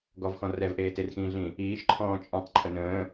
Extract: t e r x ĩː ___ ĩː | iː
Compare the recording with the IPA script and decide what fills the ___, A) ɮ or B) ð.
A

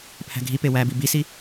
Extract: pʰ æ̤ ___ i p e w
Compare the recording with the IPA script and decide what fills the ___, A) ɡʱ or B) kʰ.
A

